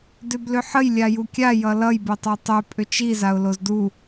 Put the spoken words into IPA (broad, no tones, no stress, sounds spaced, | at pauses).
d ʏ b l ʏ ħ ə j lʲ a j u kʲ a j ʌ l ʌ j b e tˤ o tˤ ʏ pʼ ʏ t͡ʃ i z a ʊ̯ l o z d u